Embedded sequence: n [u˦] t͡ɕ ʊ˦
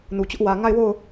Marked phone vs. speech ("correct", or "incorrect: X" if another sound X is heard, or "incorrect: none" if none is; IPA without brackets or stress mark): incorrect: u˨